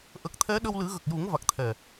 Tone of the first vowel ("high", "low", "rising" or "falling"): low